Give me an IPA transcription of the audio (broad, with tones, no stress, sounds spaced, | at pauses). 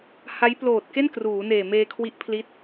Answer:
h a˦˥ j p l oː˨˩ t̚ k e˥˩ n k r uː˩˦ n eː˨˩ m eː˧ kʰ w i˦˥ ʔ pʰ l i˦˥ t̚